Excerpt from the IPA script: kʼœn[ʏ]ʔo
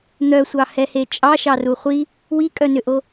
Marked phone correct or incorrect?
correct